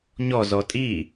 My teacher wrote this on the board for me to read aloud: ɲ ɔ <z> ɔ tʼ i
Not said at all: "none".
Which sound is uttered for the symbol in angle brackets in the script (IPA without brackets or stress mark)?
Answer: z